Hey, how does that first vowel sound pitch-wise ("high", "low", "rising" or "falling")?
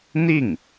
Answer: falling